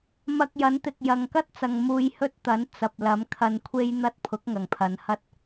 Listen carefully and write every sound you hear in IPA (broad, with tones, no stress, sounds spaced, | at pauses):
m ɐ˧ k̚ j ɐ˨˥ n t̪ ɪ˨ k̚ j ɐ˨ ŋ k ɐ˥ t̚ t͡s ɐ˨ ŋ m uː˧ j h ɵ˥ t̚ t̪ ɐ˨˥ n t͡s ɐ˨ p̚ l ɐ˨˥ m kʰ ɐ˧ n kʷʰ e˥ j n̪ ɐ˥ t̚ pʰ ʊ˨˥ k̚ ŋ ɐ˨˩ ŋ pʰ ɐ˨˧ n h ɐ˥ t̚